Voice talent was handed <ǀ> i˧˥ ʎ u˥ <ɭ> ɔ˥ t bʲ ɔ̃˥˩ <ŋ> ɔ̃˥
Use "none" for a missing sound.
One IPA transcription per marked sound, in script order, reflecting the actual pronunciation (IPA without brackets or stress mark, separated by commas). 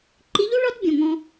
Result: ǃ, ɭ, ŋ